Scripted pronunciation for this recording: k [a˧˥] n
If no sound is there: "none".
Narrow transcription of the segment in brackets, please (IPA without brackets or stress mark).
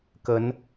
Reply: ə˧˥